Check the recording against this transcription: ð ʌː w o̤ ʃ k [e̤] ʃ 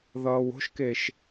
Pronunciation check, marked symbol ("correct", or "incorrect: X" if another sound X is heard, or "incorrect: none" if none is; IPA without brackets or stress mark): incorrect: e